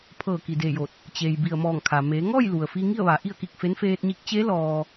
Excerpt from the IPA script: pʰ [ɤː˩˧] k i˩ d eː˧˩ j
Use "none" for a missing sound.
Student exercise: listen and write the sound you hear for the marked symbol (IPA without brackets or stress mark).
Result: ɤː˧˩